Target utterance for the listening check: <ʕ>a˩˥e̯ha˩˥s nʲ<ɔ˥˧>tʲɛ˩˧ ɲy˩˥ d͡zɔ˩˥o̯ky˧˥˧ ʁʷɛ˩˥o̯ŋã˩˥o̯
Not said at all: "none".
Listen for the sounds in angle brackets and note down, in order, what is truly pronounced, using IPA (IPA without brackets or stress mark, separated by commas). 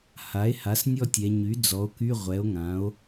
h, ɔ˥˧